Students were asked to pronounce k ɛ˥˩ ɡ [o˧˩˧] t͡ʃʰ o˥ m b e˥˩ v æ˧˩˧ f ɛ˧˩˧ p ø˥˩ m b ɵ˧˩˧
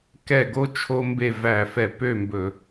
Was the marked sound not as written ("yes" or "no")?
yes